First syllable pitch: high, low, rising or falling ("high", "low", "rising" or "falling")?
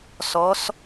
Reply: rising